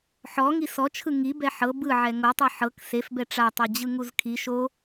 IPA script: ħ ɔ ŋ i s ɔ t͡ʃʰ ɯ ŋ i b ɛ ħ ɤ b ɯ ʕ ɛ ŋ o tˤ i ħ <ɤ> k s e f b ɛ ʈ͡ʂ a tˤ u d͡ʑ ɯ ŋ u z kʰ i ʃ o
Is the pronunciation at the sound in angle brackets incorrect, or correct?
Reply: correct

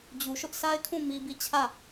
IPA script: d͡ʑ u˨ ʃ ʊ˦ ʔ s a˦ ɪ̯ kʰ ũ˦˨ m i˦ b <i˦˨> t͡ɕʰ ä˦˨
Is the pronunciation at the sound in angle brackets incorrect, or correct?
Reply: correct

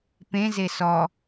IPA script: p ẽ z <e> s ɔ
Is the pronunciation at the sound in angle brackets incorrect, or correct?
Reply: correct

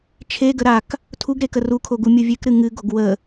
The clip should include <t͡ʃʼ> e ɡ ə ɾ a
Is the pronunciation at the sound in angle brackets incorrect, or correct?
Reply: incorrect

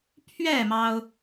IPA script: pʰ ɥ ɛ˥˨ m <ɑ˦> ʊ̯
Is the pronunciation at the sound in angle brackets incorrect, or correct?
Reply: correct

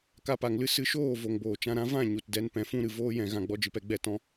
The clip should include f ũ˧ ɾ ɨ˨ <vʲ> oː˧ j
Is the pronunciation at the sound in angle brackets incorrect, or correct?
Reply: incorrect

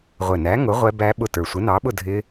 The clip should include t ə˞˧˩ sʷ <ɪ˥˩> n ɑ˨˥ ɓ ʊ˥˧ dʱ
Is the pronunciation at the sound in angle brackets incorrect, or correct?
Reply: incorrect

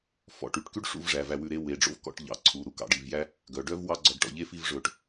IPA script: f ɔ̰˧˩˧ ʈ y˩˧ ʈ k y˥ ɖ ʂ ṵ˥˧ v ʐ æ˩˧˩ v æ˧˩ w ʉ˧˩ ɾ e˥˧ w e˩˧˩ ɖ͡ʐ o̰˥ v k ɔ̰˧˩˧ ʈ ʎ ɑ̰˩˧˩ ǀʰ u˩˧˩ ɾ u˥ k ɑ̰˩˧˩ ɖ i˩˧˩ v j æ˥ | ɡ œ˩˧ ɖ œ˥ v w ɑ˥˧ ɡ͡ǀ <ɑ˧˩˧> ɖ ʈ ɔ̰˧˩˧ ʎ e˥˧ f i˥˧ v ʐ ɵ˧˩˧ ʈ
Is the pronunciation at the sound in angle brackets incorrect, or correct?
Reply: incorrect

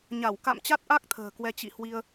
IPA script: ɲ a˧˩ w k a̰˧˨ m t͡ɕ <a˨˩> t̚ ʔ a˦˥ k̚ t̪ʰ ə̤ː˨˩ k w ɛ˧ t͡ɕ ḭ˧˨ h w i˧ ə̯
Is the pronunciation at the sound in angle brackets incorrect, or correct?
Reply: incorrect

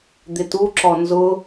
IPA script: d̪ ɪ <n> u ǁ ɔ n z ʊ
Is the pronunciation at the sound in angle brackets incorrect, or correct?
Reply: incorrect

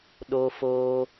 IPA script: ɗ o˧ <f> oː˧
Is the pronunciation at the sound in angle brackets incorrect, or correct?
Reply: correct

